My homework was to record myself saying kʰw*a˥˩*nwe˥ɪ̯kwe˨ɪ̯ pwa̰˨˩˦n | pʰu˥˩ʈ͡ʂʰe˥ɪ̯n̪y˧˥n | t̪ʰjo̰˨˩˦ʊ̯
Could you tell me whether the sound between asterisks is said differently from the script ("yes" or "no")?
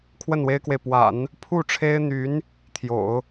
yes